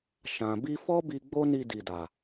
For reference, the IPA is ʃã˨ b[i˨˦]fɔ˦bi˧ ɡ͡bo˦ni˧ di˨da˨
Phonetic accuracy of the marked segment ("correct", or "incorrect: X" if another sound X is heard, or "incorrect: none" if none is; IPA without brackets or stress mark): incorrect: i˧